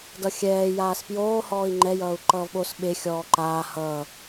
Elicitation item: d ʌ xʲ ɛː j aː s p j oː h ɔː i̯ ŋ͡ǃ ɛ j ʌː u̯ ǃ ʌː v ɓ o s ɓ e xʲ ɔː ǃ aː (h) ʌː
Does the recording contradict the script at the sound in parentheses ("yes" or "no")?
no